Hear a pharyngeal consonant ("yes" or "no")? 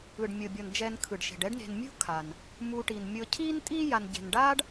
no